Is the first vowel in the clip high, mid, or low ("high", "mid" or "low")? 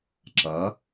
low